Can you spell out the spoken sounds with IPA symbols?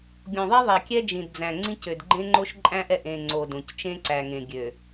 ɡʲ õ˨ ðˤ i˦ ðˤ ɛ˨ kʲ ɛ˦ d͡ʒ ĩ˨ d d͡z æ̃˨ ŋ͡ǀ ĩ˦ c ø˨ d ɡ͡ǃ ẽ˦ ŋ͡ǃ o˦ ʃ ǃʼ æ̃˦ ʔ ɛ˨ ʔ ẽ˨ ŋ͡ǀ o˨ d õ˨ c t͡ʃ ẽ˦ ǀ æ˨ ŋ ẽ˨ ɡʲ ø˨

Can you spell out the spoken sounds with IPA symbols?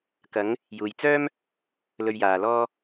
k ɐ˨˧ ŋ | j uː˨ j t͡s œː˥ m | l ɵ˧ ɥ j aː˨ l ɔː˥

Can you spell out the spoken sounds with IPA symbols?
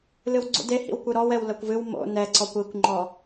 l ɨ w ɡ͡ǀ ṵ d e h ḭ w kʷ ɨ ɾ ɔ w ɛ w l ɐ kʷ v ɨ w m o̰ n ɛ ǀ ɔ kʷ i kʷ ŋ͡ǃ ɔ

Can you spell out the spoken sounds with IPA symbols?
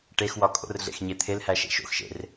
ʈ e x w ɒ kʼ o̰ r ɮ ḛ x ɲ e t̪ʰ e l h æ ʃ ḛ ʃ o̰ x ʃ ḛ r

